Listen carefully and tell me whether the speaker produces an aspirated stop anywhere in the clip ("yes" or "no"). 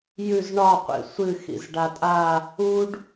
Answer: no